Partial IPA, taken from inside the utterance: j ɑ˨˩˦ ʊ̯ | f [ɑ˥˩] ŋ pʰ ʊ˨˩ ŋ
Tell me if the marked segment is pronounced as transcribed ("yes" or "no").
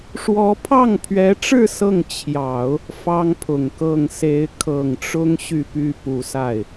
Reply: no